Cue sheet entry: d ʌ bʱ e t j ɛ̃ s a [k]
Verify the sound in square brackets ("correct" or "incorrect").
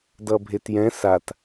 incorrect